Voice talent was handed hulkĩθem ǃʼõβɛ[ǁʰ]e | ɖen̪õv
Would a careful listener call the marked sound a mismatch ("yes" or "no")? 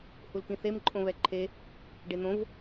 yes